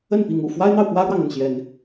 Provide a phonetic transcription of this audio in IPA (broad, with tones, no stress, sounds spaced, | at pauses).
ə˥˨ n p i˨˦ ŋ ṵ˨˩ f w a˦ ɪ̯ n̪ ɑ˨ ʊ̯ p w ä˦ ɻ w ɑ˨ ŋ ə˥˨ n ɕ j ɛ˨˦ n